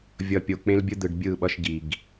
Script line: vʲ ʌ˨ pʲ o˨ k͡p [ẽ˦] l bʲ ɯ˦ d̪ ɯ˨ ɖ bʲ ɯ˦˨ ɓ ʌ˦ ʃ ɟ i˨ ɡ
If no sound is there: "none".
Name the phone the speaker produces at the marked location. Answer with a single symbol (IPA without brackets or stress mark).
ẽ˦